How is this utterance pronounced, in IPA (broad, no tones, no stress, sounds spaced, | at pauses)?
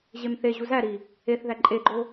ʑ e m θ e ʑ u z æ ɾ i | e θ ð æ ǃʼ e ɡ͡ǃ o